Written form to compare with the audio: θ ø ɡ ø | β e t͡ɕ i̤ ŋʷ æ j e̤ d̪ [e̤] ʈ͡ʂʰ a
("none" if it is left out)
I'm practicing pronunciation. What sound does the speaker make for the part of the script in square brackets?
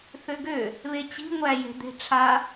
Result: e̤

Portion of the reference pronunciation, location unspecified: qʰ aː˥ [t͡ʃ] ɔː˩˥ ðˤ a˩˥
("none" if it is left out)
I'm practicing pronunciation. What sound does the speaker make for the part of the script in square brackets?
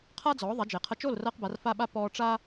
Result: d͡z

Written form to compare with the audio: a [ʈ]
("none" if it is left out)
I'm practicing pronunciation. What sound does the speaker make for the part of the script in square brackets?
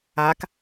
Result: k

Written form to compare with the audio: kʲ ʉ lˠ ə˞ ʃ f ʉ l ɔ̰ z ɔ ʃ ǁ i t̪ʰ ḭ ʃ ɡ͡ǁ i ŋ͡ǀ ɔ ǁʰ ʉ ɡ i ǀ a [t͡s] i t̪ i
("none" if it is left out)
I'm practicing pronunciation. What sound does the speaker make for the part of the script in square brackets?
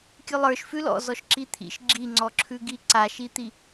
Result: ʃ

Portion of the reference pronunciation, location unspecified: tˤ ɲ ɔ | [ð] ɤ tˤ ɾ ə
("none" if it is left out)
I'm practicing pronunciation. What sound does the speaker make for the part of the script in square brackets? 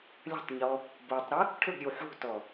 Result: b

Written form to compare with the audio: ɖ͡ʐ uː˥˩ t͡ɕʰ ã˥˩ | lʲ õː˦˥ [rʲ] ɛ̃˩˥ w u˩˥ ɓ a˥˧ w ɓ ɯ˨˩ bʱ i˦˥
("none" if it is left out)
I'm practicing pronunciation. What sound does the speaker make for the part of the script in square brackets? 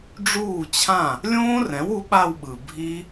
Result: r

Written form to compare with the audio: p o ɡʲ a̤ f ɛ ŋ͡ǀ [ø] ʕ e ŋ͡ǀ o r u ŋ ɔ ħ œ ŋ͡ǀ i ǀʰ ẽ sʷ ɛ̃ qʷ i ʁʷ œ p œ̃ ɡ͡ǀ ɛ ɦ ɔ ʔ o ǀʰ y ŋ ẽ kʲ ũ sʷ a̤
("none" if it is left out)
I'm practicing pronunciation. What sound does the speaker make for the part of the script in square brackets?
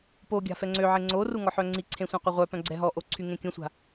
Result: ø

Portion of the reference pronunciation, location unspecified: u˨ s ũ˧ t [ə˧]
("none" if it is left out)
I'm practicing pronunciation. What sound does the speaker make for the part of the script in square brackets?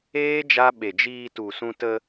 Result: ə˧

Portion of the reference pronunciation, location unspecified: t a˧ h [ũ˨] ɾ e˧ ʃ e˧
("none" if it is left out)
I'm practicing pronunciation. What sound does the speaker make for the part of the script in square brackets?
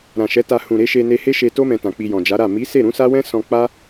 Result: ũ˨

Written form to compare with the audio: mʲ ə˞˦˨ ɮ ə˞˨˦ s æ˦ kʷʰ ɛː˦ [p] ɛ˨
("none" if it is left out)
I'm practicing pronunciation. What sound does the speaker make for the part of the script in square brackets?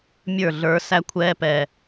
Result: p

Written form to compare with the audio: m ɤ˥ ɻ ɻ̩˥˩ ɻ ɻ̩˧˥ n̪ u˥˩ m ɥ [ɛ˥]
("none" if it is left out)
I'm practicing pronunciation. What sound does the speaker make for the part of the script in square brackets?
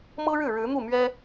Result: ɛ˥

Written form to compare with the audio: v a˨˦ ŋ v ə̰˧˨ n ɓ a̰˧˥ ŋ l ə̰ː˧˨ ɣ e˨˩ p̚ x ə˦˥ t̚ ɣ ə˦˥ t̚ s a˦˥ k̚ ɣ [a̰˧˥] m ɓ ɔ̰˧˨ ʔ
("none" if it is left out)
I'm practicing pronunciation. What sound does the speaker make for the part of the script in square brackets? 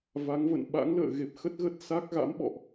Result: a̰˧˥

